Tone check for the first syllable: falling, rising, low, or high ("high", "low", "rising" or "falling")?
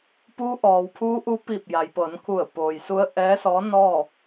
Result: rising